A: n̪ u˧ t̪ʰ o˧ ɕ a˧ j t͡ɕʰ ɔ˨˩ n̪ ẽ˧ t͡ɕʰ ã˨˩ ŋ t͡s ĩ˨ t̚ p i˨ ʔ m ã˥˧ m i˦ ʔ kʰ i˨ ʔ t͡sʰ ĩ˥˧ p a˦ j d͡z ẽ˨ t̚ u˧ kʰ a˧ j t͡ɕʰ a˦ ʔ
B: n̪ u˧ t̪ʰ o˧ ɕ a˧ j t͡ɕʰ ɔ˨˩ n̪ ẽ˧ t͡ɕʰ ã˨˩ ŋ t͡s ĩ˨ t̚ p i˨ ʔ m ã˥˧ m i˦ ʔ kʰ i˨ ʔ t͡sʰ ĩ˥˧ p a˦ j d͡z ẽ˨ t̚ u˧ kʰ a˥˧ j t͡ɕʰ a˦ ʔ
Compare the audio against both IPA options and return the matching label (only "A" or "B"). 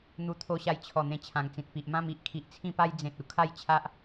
B